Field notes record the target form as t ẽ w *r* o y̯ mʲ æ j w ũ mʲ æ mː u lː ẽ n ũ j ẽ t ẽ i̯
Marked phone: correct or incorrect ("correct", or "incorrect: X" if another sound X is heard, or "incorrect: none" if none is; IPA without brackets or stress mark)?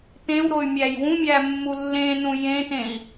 incorrect: ɾ